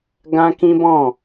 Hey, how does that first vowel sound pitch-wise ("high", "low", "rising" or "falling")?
high